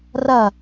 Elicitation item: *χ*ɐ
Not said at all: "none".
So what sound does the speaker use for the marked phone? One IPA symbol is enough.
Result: r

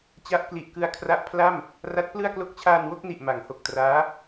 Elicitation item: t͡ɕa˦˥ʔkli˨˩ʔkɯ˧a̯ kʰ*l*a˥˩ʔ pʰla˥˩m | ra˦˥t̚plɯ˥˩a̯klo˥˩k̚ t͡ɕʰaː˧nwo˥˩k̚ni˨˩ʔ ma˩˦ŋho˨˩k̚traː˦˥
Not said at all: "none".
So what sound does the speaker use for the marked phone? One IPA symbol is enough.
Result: r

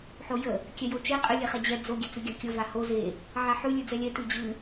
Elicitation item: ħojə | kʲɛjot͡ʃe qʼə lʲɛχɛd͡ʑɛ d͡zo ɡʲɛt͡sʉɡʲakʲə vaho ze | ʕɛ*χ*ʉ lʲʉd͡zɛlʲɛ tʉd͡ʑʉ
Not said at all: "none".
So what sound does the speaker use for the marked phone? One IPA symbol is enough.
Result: ħ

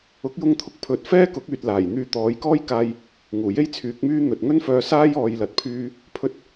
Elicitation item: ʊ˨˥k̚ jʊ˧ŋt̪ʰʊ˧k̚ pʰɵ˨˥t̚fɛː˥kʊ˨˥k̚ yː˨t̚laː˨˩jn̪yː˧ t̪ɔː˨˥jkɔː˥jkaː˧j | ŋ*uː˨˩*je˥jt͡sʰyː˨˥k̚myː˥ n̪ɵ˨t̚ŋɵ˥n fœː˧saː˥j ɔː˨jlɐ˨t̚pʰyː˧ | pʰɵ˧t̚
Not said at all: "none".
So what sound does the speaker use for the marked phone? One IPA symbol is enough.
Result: uː˨˩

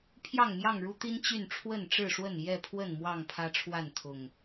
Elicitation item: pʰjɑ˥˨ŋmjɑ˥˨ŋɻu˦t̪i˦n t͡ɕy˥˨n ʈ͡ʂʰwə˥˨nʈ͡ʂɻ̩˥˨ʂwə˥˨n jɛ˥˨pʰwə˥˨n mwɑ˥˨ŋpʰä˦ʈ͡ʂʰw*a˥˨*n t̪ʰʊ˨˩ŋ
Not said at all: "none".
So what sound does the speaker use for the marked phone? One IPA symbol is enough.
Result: a˥˨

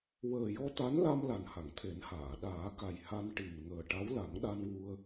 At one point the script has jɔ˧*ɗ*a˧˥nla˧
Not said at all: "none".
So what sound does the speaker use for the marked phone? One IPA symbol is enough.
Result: t̪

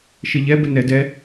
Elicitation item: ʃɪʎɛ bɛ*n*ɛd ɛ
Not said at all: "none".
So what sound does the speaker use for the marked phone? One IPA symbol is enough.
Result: n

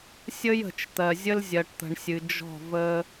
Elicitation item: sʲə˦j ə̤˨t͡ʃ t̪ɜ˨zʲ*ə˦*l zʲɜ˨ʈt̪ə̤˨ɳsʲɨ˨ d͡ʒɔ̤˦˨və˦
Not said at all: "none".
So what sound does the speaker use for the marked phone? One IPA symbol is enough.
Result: ə˦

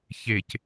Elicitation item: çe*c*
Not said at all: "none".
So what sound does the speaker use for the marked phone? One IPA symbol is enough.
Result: c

